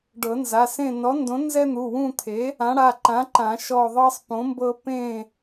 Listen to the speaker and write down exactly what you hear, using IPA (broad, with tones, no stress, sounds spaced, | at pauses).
ɖ ɤ˨˩˦ n z a˩˧˩ s ẽ˦˨ n ɔ˨˥ n d õ˨˥ n z ɛ˦ n̪ u˩˧˩ w ũ˦˨ t̪ʰ e˨˥ | ã˨˥ ɽ a˩˧˩ ǃ ã˨˥ ǃ ã˨˩˦ ʃ ɔ˦˨ ðˤ ɤ˦ sˤ p õ˨˥ m b ɤ˦ p ẽ˦˨